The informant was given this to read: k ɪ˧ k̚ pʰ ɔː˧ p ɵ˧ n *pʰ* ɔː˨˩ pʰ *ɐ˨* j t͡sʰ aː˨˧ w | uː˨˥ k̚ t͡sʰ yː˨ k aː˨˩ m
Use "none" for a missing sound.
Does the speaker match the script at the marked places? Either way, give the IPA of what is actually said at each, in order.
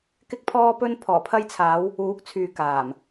pʰ, ɐ˧

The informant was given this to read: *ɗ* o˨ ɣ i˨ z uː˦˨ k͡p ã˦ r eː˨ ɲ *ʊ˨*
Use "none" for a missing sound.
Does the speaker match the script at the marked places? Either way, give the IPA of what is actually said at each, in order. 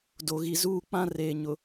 d, ʊ˨

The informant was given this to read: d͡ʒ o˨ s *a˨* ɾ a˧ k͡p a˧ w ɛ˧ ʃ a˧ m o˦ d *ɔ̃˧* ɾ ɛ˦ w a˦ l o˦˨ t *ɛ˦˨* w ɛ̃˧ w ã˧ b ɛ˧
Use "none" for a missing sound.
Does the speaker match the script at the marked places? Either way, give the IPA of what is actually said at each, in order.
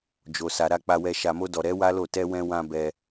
a˨, ɔ˧, ɛ˧

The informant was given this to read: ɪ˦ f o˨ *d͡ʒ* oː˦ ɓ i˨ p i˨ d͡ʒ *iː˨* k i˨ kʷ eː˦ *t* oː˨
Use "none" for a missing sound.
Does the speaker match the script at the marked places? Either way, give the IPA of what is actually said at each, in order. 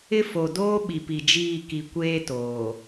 d, iː˦˨, t

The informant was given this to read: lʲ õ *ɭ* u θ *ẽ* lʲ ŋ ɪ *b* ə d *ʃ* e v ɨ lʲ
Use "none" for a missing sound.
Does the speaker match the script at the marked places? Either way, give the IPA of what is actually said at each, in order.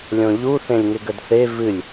ʎ, ẽ, ɡ, θ

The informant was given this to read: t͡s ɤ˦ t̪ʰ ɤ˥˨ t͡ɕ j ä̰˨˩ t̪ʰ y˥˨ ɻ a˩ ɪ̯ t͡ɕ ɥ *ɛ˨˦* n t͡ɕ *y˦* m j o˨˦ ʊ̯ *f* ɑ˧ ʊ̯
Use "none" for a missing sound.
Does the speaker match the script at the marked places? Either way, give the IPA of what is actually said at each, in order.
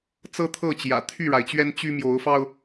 ɛ˦, y˦, f

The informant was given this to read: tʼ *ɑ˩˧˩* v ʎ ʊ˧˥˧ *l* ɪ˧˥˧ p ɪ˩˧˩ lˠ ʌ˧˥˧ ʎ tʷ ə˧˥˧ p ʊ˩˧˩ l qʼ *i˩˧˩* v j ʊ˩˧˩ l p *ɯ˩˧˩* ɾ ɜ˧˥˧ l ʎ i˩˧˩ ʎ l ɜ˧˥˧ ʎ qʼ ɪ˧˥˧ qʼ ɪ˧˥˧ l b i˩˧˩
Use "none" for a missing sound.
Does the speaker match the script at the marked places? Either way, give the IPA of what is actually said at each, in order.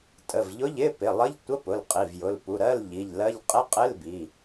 ə˩˧˩, ʎ, i˩˧˩, u˩˧˩

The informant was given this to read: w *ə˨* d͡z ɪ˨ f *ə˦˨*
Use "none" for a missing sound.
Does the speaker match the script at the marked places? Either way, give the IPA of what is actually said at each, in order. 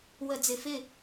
ə˨, ɪ˦˨

